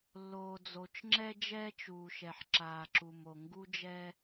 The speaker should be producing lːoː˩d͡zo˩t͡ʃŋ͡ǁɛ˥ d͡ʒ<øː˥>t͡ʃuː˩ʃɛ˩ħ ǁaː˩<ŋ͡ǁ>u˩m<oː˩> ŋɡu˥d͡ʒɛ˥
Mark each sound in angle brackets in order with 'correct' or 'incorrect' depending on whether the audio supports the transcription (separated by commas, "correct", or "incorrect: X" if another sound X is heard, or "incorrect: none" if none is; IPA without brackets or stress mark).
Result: incorrect: ɛː˥, incorrect: ǁ, incorrect: o˩